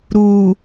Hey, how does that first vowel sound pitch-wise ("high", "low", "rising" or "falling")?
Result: low